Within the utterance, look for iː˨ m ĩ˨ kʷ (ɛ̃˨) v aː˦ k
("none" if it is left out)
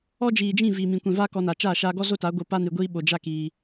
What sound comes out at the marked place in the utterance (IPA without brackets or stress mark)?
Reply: ɛ̃˨